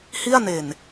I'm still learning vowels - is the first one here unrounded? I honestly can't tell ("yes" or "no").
yes